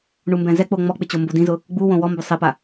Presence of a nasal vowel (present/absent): present